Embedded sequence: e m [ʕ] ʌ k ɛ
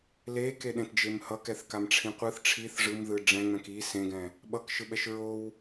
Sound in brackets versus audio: incorrect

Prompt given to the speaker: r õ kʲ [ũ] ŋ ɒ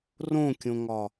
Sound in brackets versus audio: incorrect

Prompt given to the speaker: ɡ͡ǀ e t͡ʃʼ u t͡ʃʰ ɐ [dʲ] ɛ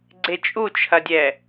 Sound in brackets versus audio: correct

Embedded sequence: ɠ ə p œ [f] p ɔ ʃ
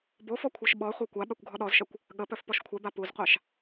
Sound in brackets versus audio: correct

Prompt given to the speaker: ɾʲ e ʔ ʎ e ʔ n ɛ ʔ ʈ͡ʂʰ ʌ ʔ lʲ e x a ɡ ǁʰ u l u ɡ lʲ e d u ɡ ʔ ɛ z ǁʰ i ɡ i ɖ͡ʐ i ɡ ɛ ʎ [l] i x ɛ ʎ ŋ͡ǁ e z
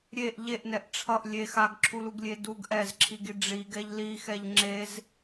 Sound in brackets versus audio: correct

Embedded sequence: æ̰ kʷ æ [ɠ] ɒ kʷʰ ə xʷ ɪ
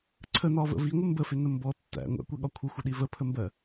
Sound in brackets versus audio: correct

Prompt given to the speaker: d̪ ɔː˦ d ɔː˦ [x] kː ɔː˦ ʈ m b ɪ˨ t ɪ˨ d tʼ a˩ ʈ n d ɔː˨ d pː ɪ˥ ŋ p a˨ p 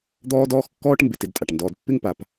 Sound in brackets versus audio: correct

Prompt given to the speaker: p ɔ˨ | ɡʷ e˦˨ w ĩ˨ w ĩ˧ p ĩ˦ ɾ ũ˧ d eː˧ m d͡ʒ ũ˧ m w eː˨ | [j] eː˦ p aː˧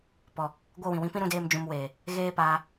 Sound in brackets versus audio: incorrect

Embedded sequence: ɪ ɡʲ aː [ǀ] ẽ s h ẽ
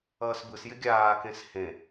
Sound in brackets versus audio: incorrect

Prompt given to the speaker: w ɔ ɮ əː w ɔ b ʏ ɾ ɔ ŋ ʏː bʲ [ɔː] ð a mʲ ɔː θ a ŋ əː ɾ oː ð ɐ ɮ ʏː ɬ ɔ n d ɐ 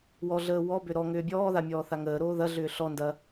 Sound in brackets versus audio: correct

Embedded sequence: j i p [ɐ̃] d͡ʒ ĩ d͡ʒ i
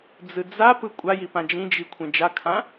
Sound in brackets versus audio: incorrect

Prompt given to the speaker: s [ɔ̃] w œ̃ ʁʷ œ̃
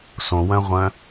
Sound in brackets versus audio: incorrect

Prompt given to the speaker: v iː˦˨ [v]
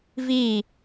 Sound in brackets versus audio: incorrect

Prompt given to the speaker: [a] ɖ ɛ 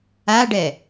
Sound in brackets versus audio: correct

